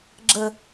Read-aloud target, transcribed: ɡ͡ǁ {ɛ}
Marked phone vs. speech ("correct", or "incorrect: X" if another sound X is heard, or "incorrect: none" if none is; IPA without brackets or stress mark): incorrect: ə